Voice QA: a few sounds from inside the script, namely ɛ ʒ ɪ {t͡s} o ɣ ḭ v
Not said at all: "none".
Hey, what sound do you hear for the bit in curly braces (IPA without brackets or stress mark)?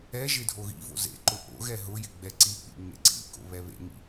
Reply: dʱ